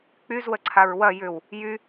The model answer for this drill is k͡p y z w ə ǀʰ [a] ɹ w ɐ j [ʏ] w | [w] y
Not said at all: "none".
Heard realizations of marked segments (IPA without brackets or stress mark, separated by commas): a, ʏ, j